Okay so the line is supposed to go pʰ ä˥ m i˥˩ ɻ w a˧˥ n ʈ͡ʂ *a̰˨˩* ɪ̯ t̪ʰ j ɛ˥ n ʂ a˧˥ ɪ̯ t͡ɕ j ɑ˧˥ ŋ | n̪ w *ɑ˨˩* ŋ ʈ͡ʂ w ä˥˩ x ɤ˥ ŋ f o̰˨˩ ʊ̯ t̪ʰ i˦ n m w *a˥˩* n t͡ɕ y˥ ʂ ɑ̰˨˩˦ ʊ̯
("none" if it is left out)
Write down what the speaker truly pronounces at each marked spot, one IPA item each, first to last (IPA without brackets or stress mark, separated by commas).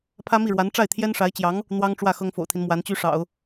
a˥˩, ɑ˥, a˧˥